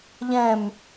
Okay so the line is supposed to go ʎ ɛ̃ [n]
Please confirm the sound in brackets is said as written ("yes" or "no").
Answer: no